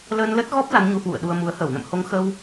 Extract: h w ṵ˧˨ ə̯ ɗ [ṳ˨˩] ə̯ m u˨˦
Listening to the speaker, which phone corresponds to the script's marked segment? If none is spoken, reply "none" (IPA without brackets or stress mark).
u˧